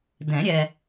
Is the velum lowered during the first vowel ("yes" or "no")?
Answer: yes